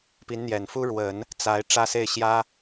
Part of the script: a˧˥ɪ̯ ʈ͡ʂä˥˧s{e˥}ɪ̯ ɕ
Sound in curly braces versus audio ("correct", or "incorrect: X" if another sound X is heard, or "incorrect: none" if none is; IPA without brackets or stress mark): incorrect: e˥˩